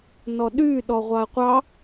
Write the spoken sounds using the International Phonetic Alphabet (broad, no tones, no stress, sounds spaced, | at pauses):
n ɔ ɗ y ɗ ɔ ʁʷ ɑ ə̯ qʷ ɑ